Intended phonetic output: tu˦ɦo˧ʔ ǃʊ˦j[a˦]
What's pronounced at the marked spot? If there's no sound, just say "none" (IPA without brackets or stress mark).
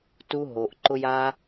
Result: a˦